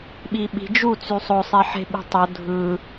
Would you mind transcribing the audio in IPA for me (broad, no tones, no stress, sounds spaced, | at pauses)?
ɓ i ɓ i̤ d͡ʒ u t͡s y sˤ o sˤ e ħ e̤ ɓ i̤ tˤ o dʱ ɯ